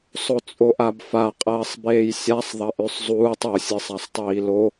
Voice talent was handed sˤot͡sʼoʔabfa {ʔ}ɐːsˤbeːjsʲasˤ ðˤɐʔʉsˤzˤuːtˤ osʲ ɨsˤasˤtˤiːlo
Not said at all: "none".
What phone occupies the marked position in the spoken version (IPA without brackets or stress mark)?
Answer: qʼ